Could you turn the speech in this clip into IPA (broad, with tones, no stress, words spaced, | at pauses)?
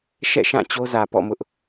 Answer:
ʃɛ̰˦˨ʃã˦˨ t͡ɕo˦zä˨pɔ̰˦˨mʊ˦ʔ